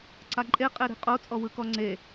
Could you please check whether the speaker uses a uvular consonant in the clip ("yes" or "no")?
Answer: yes